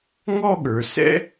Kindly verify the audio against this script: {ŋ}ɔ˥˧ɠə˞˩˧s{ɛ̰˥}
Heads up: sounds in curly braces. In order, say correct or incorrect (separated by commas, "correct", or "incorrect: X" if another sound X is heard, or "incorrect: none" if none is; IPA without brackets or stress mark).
correct, correct